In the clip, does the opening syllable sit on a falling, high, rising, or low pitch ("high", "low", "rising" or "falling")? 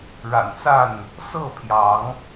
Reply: low